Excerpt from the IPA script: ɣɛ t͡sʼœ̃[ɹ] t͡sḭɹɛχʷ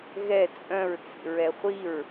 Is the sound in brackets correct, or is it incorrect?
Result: correct